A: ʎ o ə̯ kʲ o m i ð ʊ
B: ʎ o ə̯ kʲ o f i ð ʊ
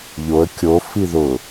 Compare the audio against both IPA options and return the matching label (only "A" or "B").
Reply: B